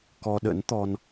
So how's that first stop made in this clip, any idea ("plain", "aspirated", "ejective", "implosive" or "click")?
plain